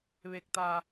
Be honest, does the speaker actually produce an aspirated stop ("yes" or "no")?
no